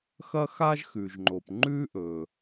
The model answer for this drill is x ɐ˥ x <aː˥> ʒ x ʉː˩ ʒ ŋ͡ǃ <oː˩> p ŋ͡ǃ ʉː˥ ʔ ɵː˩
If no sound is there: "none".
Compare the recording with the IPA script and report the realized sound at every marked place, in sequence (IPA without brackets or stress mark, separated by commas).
aː˥, oː˩